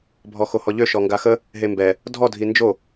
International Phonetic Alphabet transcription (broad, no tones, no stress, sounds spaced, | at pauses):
bʱ ɔ x o h ɔ ʎ ø ʃ ɔ ŋ ɡ a x ə | ɦ e m b ɛ | dʱ ɔ dʱ i n d͡ʒ o